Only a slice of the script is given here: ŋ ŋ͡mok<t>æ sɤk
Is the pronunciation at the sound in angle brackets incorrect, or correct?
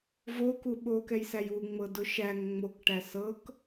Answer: incorrect: ʈ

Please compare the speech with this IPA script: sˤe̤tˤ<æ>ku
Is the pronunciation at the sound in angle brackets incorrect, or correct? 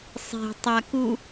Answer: incorrect: a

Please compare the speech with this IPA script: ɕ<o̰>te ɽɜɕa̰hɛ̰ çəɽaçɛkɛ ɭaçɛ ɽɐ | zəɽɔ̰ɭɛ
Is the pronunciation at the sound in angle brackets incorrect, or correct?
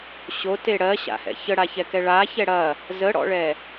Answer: incorrect: o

